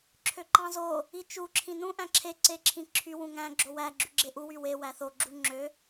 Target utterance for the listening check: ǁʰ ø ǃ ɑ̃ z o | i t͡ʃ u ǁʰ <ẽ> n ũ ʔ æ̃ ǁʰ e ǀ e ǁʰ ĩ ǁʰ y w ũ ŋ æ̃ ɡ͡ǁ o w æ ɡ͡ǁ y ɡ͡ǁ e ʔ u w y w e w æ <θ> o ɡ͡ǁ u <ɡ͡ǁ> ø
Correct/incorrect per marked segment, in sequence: incorrect, correct, incorrect

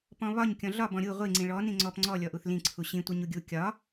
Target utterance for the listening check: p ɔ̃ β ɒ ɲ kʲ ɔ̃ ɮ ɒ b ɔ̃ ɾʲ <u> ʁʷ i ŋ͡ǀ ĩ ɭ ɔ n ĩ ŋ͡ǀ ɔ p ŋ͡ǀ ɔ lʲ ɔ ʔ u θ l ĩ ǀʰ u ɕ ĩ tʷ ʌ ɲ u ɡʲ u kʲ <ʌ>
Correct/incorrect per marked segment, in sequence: correct, incorrect

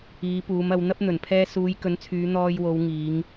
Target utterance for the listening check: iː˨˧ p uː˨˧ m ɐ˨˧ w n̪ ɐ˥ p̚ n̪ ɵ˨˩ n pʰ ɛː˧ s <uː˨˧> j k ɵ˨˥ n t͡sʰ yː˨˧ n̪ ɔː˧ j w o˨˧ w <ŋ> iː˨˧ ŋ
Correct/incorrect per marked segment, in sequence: correct, correct

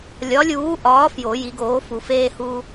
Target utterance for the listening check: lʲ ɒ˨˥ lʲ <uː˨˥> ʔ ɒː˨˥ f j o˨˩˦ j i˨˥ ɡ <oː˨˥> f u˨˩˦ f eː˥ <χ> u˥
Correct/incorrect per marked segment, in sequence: correct, correct, incorrect

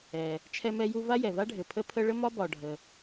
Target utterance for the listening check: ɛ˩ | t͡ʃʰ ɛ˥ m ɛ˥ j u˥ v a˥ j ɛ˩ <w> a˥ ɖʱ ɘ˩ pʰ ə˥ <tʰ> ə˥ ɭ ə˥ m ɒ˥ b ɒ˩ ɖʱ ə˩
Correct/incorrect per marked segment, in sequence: incorrect, incorrect

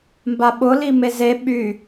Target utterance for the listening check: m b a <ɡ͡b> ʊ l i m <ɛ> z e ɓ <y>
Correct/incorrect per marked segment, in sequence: incorrect, incorrect, correct

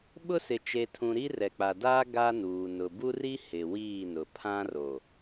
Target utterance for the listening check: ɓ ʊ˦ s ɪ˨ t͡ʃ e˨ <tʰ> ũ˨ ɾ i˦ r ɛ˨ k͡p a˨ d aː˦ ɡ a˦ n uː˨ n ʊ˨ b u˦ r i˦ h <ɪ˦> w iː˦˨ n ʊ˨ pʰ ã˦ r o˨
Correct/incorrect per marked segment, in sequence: correct, incorrect

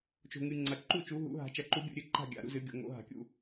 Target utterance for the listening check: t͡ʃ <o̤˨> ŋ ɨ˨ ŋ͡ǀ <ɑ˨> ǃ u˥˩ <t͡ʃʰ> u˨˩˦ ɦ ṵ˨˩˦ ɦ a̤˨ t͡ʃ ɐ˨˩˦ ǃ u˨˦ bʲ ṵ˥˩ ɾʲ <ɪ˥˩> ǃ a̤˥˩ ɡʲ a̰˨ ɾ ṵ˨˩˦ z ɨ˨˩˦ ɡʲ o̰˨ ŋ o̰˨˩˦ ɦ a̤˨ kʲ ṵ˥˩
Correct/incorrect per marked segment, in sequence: correct, incorrect, incorrect, incorrect

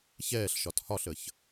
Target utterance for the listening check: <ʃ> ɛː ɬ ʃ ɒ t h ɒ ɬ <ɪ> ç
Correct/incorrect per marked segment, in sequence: incorrect, incorrect

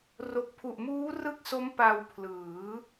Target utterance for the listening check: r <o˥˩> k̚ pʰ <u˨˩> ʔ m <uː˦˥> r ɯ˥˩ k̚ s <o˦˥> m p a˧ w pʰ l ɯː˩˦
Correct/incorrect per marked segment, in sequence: incorrect, correct, correct, correct

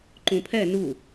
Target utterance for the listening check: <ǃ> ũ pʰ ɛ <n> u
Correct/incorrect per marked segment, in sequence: correct, correct

